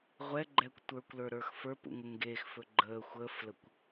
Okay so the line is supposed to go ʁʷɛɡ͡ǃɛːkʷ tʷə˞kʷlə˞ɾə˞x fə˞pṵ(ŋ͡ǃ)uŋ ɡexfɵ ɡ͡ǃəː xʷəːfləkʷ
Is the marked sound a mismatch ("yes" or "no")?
yes